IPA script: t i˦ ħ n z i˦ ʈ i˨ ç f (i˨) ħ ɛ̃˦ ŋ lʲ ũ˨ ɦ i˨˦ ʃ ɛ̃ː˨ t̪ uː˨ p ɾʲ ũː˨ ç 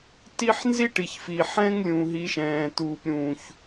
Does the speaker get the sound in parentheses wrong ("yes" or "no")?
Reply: no